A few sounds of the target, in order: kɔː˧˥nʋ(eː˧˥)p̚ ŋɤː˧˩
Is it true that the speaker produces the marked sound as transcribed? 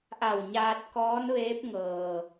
yes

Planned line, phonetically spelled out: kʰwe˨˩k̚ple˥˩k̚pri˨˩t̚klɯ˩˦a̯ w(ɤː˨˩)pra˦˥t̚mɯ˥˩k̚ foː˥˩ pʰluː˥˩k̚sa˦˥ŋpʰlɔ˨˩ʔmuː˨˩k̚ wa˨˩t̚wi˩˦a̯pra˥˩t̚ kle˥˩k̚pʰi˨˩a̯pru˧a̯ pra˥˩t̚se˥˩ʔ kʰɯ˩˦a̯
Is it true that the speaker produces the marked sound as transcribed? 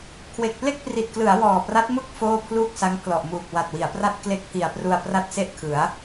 no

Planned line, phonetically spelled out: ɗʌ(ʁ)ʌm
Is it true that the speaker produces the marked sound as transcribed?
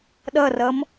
no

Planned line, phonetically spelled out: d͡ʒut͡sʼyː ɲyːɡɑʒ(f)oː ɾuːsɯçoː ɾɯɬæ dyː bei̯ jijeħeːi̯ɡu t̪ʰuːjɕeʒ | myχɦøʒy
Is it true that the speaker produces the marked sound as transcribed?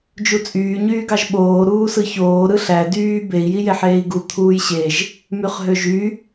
no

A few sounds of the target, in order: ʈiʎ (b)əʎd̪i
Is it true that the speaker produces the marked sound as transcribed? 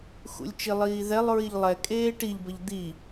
yes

